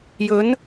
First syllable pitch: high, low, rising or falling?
rising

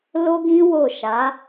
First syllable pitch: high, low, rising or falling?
high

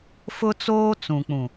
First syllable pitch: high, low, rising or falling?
high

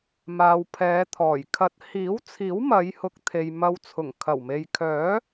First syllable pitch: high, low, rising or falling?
low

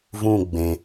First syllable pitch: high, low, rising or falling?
falling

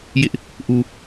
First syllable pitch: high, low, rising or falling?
high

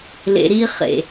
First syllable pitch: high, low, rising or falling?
low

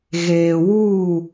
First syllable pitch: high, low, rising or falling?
low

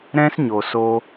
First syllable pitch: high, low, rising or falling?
high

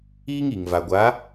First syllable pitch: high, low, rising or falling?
high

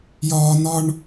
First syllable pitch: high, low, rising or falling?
high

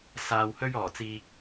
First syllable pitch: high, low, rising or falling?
low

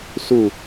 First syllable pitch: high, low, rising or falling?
falling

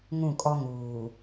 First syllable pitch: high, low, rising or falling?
falling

